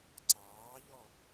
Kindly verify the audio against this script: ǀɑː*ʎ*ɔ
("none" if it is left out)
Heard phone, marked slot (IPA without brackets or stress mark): ʎ